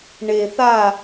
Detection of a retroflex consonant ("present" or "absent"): present